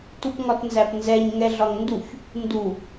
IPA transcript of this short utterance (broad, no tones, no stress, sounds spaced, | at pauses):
t u p ŋ ɒ t n z æ p n z ɛ ɲ ŋ ɛ ɮ ɒ ŋ n d u ç | n d u